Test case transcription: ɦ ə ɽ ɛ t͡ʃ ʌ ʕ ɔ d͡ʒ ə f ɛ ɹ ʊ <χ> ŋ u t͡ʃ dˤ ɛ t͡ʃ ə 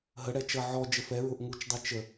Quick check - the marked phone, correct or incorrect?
incorrect: ʔ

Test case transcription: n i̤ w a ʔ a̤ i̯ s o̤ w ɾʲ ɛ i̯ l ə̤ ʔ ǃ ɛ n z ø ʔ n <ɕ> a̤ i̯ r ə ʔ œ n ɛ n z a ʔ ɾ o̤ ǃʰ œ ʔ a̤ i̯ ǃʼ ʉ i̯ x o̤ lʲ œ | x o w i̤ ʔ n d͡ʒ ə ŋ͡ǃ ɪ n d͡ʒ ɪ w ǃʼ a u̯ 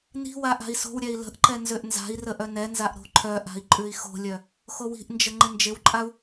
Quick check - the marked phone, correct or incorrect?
incorrect: z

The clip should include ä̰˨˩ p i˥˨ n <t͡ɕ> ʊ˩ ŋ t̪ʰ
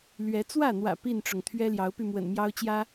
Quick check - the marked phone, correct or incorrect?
incorrect: ʈ͡ʂ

